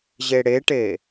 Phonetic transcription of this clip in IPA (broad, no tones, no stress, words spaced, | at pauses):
ʑeɽeʈe